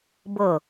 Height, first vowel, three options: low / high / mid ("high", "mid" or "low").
mid